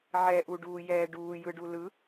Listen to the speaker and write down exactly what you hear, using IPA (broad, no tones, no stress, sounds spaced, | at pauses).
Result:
ʕ ɛ ʔ u ɖ uː j ɛː ɖ uː j ɯ ɖ u l ɯ